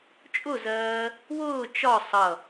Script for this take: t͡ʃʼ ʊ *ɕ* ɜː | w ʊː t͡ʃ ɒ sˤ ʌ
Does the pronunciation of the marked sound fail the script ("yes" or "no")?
yes